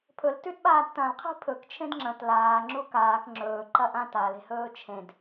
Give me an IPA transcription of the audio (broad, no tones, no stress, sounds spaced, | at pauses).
pʰ ɵ l t ʉ d ɓ aː d t ɐ̃ l qʰ i̤ pʰ ɵ k t͡ʃʰ ẽ d ŋ͡ǁ ɐ̃ t l aː ŋ͡ǁ u k aː k ŋ͡ǁ ɵː ǃ ɐ ʔ ã t a l e̤ h ɵː t͡ʃʰ ẽ d